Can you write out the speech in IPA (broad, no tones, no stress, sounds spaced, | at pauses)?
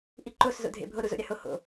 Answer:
ʔ i ǃ o s z o̰ dʱ ḛ bʱ o ɾ u z o̰ ɾʲ a h o h o̰